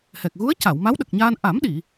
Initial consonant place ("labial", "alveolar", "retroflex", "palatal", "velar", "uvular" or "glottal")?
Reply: glottal